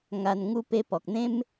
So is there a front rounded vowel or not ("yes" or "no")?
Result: no